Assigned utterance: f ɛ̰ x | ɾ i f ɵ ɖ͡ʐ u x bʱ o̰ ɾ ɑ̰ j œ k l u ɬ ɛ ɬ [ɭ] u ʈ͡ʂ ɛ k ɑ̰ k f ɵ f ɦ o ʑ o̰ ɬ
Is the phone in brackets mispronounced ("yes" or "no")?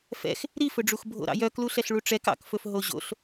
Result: no